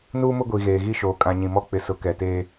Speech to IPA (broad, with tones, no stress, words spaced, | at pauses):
nuː˦mʊ˦ɡʷi˨ ɣeː˨ɣi˦ʃoː˨ kʼã˨ɲĩ˨mɔ˦ k͡pɪ˨ sʊ˨˦kɛ˨teː˦